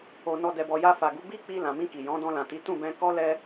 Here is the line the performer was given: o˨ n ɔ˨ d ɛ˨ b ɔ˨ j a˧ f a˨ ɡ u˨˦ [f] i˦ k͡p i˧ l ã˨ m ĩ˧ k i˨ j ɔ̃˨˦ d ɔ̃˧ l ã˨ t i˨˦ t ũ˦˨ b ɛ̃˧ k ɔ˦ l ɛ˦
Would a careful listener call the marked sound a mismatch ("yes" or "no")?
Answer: yes